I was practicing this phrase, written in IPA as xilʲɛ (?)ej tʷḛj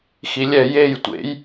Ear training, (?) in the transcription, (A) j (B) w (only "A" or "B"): A